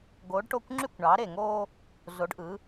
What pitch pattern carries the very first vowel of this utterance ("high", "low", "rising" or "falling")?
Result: rising